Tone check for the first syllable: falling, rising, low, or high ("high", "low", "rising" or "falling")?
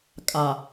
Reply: low